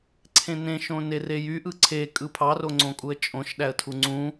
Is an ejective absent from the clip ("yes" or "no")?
no